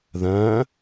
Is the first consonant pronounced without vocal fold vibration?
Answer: no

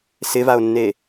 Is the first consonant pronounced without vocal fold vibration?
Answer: yes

